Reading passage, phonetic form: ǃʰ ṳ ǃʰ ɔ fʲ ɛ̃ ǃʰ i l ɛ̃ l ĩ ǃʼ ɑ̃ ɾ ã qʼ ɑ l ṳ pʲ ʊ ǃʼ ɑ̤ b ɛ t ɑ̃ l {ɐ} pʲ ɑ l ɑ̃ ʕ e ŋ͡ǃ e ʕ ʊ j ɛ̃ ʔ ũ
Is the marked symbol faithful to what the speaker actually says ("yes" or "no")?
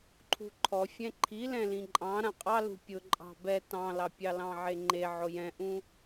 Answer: no